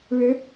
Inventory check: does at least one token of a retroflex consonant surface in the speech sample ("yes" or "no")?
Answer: yes